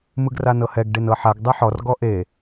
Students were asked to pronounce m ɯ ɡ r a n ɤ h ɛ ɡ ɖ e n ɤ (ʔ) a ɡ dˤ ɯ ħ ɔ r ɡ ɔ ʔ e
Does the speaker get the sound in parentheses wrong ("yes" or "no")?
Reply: yes